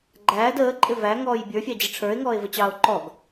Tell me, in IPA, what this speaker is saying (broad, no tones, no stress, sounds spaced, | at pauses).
ɡ͡ǃ æː d əː ǃʼ ɪ v æ ŋ ɔː j bʲ ə˞ fʲ ɑ d͡ʑ ɪ ʈ͡ʂʰ ə˞ e̯ ŋ ɔː e̯ v ə t͡ɕ ɑː o̯ ǃ ɔ ɡ